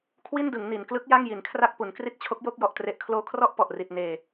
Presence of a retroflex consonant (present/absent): absent